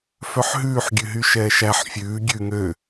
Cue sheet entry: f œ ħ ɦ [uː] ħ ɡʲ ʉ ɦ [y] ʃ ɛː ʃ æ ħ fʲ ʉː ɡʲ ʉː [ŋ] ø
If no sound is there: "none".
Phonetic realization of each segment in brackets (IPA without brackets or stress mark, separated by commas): ʉː, y, ŋ